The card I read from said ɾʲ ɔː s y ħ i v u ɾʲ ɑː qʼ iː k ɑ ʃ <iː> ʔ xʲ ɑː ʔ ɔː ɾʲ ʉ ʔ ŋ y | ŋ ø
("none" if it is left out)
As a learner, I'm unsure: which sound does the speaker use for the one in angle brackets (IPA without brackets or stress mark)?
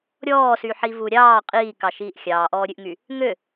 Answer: iː